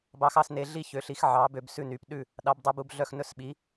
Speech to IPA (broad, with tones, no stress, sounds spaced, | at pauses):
b ɑ˨˦ x ɑ˦˨ s n e˨˦ ɮ i˦˨ ç ø˨˦ ɬ i˨˦ x ʕ ɑ˨˦ b ø˨˦ b s ʉ˦˨ n y˨˦ p ɗ ʉ˦˨ | ɗ ɑ˨˦ b dˤ ɵ˨˦ b u˦˨ b ɮ œ˦˨ x n ɵ˦˨ s ɓ i˨˦